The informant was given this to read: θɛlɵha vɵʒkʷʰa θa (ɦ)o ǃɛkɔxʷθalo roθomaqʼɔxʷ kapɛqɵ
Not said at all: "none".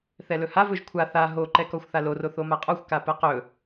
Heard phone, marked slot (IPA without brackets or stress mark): ɦ